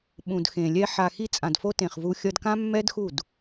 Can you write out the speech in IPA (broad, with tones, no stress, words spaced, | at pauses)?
ɓũ˨dxẽ˨lʲɛ˧ ħa˨ xi˧t͡sʼã˨dfo˧ tẽ˨χvu˧ xʲʌ˧dkã˦ mːɛ˦dxu˦˨d